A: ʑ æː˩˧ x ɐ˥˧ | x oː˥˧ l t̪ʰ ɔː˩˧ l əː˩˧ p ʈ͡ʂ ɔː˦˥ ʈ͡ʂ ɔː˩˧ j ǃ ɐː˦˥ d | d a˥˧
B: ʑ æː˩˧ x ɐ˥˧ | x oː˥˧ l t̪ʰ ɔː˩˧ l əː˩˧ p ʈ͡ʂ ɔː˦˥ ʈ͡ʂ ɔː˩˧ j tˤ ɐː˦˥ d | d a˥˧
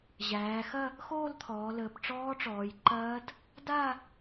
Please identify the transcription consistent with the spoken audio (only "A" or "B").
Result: A